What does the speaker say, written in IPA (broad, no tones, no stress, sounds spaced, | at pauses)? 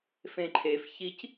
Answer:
f ẽ ǃʰ e f ç i c